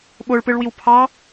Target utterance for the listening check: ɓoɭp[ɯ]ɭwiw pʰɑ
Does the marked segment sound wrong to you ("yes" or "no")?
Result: no